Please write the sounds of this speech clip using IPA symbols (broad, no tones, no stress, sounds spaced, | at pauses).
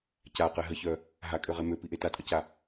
c a q ɛ ɦ ə ç œ | ɦ a kʼ ø ʁ e m ø p i ʔ e t a tʼ ə c a